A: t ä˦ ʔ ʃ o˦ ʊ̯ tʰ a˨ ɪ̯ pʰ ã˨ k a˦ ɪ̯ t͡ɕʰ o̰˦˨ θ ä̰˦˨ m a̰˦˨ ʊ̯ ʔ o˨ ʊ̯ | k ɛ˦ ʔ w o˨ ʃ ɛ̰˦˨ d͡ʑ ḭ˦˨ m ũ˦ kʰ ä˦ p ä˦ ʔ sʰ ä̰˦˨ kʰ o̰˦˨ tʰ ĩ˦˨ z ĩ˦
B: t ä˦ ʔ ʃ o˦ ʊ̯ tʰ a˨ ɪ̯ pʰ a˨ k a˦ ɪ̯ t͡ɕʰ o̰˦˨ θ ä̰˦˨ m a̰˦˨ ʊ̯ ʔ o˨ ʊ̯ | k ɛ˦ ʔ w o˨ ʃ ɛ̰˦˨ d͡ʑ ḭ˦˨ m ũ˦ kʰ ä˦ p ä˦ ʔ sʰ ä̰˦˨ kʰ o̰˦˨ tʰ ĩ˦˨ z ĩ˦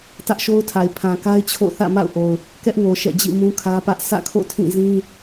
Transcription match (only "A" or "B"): A